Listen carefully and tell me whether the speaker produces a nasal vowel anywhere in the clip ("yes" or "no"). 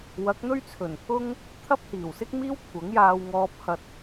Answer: no